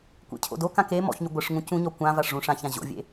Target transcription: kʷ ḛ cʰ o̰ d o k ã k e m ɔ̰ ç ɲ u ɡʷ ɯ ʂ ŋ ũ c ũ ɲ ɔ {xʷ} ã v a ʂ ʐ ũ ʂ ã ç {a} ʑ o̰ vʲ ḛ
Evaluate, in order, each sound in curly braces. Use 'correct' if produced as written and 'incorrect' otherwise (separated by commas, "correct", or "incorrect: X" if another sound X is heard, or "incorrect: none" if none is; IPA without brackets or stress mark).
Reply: incorrect: kʷ, incorrect: ã